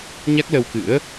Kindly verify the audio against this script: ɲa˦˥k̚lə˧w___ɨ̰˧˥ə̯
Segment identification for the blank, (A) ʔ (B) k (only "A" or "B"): B